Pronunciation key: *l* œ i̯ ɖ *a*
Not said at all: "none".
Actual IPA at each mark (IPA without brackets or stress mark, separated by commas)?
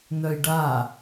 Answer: n, a